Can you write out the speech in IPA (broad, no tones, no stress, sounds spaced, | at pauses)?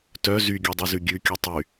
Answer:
t œ z y ɡʲ œ dˤ y z ʉ ɡʲ ʉ kʲ ʉ tˤ y